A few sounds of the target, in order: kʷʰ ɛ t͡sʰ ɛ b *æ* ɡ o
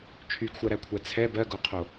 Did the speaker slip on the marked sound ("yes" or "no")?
yes